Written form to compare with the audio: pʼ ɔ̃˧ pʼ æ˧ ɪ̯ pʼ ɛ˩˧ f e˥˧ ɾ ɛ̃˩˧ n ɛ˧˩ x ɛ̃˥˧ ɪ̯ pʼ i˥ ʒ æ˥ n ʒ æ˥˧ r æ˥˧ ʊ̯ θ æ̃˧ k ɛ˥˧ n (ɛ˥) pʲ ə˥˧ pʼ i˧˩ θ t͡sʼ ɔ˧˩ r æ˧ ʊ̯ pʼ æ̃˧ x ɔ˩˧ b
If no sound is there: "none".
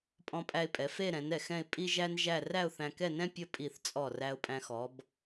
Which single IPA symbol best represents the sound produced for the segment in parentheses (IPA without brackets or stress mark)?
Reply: ɛ̃˥